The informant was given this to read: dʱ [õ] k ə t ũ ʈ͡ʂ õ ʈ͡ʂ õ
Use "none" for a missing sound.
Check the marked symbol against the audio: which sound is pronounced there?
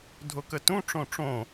o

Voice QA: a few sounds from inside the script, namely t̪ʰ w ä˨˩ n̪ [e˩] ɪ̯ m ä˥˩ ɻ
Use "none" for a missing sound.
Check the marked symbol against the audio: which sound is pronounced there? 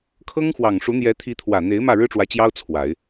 e˧˥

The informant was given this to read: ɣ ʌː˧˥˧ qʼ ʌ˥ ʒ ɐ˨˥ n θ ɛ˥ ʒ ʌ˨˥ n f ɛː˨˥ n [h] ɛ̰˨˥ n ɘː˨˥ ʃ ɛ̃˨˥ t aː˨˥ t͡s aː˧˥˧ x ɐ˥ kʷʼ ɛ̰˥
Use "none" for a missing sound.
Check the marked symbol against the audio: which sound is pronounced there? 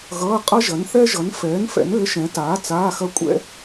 f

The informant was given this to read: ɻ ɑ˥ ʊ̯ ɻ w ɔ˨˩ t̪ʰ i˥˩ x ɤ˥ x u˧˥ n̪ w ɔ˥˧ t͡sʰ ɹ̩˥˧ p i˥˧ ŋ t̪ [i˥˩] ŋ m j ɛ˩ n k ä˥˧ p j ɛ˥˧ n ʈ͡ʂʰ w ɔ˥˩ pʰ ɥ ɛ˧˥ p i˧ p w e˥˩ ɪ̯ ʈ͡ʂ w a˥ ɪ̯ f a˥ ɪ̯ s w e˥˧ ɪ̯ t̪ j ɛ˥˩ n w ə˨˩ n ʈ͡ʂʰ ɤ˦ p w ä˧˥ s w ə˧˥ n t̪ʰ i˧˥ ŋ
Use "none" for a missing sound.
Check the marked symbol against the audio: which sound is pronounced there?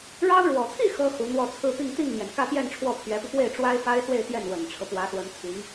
i˥˩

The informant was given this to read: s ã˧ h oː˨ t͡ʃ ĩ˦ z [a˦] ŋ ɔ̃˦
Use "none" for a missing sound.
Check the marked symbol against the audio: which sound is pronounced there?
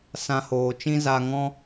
a˦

